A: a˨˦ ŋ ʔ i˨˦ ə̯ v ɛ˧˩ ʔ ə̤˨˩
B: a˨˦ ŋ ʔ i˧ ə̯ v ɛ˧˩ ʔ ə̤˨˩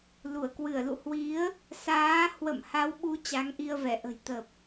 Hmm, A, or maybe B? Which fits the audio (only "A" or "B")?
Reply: B